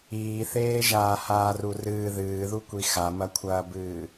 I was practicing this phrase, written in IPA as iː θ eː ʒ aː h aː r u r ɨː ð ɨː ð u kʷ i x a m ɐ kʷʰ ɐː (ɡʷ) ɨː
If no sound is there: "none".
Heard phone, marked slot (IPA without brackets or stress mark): b